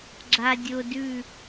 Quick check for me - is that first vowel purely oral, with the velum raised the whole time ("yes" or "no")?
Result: yes